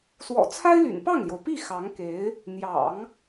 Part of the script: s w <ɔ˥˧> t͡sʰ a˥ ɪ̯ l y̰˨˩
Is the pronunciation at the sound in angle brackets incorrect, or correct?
incorrect